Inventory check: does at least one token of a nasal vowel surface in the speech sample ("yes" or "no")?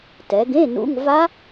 yes